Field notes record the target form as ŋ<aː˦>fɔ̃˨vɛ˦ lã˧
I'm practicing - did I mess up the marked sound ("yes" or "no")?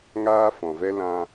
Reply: no